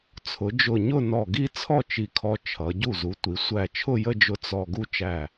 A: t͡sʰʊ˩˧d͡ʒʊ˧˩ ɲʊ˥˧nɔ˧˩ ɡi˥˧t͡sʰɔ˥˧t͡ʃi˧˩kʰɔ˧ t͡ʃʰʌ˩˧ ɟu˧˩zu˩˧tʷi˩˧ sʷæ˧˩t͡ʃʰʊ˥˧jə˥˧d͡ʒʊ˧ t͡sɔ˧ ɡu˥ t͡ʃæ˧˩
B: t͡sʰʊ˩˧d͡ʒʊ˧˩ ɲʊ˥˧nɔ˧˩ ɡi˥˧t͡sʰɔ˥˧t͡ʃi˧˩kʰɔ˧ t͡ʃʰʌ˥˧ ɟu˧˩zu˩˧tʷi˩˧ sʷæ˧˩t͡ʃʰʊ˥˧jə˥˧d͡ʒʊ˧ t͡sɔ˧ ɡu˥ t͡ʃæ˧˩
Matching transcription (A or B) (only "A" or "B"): A